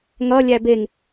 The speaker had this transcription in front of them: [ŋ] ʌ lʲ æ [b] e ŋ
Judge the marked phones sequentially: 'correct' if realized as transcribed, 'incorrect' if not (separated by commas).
correct, correct